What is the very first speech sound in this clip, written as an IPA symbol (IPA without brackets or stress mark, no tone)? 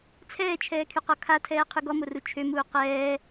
t͡sʰ